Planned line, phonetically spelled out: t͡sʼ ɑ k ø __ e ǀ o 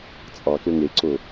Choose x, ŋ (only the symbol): ŋ